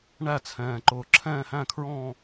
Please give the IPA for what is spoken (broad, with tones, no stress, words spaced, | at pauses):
ɳæ˥˨t͡sʰɛ̃ː˨ǃʊː˨ ǁʰɛ̃ː˥˨hæ̃˥˨kʰɹɔ̃ː˥˨